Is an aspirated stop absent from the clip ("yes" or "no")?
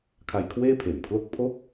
no